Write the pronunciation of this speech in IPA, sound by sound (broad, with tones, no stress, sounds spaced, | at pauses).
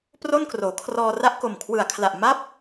p r o˥˩ n k r oː˩˦ kʰ r ɔː˧ r a˥˩ ʔ k o˨˩ m kʰ w ɯ˨˩ a̯ kʰ l a˨˩ ʔ m a˦˥ p̚